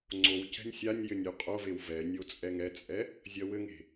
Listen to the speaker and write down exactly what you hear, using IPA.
ŋ͡ǀ o w c ɛ̤ nʲ sʲ a nʲ j ɘ nʲ u qʼ o v e w v ɛ nʲ o t͡sʼ ɛ ŋ ɛ t͡sʼ ɛ | zʲ ɐ w ɘ ŋ e̤

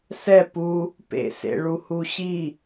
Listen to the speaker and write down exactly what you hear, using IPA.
s ɛ p u | p ḛ s ḛ ɭ u h u ɕ i

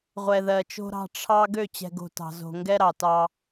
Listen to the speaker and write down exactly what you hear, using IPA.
ʁʷ ɛ˨ ð ɜ˨ t͡ʃ o̤˦ ɾ ɑ̤˦ ʈ͡ʂʰ ɑ˦ ɡ ø˦˨ t͡ɕ ɛ̤˨ ɡ o̤˨ t ɑ̤˨ z o̤˨ ŋ ɡ ɛ˦ ɾ ɑ˨ t ɑ˦

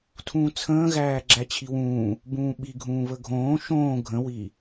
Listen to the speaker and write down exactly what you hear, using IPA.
tʰ ũː t͡sʰ ə̃ː ɣ æː ɡ͡ǁ æ t͡ɕʰ i w ũː | b ũː ɓ i ɡʱ ũː β ə ɡʱ õː ʃ õː ɡʱ ə̃ w i

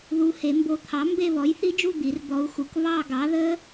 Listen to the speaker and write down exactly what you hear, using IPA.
ð u˧˥ h e˩˥ m b o˧˥ t̪ʰ ɑ˩˥ m b e˦˨ β ɔ˩˥ j θ i˧˥ d͡ʒ u˦˨ d̪ i˩˥ r d̪ ɔ˧˥ u̯ x u˩˥ k β ɑ˦˨ ɡ ɑ˩˥ ð ə˧˥

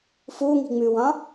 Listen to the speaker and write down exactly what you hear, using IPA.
f u ŋ i̤ ŋ͡m ʉ w ɑ̃

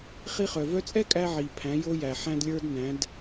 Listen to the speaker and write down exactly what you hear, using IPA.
χ i˧ χ œ˩ v œ˧˥ t͡sʼ ɛ˥ kʼ æ˧ ʕ i˩ pʰ æ̃˩˧ j o˧ j æ˩ ħ æ̃˧ d lʲ ə˞˧ d n æ̃˩˧ d

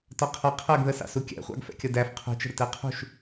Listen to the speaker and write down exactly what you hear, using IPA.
t ɒ qʰ ʌ qʰ ɜ ɡ ð ə s ɑ̰ s u kʲ æ̰ χʷ ɑ̰ ɡ f ɛ̰ kʲ ʌ d æ f qʰ ṳ t͡ʃ ə̤ ɾ ʊ t ɛ qʰ ṳ ʃ

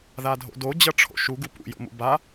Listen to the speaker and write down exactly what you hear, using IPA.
ð a dʱ o̰ d o d͡ʑ ʌ ʈ͡ʂʰ o̰ ʃ u ɡ u p ṵ j o̰ m ṵ b a

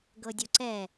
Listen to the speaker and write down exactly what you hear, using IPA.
ɡ ɤ dʲ o ǀ ɛ

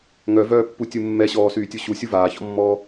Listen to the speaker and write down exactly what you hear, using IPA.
ŋ œ v œː pː u tʲ u mː ɛ ɕ ɔː s yː tʲ u ɕ u sʲ u v aː ç ɔ̰ mː ɔː

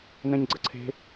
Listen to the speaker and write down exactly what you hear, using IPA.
n̪ ɛ̃ ɲ ɡ͡ǀ ə ǀʰ e̤

